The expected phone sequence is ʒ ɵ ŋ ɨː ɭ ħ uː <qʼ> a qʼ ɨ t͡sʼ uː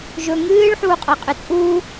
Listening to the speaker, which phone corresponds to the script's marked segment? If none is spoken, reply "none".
qʼ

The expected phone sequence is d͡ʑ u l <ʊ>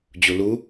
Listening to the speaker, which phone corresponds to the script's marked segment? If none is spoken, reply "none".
u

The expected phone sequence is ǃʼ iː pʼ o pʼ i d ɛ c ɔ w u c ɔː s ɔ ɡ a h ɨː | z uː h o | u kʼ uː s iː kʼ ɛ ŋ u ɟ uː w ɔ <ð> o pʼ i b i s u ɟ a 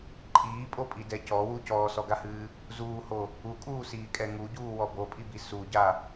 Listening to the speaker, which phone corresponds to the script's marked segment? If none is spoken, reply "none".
b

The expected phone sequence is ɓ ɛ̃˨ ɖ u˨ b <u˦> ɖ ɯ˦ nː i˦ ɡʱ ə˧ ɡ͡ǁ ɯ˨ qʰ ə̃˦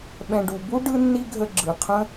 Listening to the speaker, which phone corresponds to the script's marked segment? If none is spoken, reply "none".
u˦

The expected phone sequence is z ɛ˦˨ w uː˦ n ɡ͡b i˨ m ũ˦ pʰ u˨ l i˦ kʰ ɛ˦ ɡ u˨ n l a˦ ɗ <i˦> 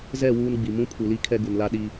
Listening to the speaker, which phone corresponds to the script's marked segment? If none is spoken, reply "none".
i˦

